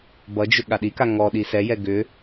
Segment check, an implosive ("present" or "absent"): present